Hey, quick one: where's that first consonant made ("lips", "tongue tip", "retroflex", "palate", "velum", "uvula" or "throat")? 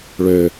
retroflex